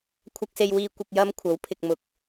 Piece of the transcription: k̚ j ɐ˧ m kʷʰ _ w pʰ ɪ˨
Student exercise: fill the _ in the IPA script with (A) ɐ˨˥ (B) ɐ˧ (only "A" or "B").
A